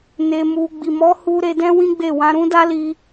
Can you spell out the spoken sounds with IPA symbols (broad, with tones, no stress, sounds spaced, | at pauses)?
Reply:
n e˧ m u˧ ɡ͡b i˨ m ɔ˨˦ h u˧ ɾ e˧ d ɛ̃˦ w ĩ˦ ɡ͡b e˦˨ w ã˧ ɾ ũ˦ d a˦ l i˧